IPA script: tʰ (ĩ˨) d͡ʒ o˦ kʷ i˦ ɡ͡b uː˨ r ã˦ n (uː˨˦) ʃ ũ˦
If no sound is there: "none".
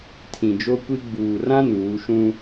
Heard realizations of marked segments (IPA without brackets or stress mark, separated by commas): ĩ˨, uː˨˦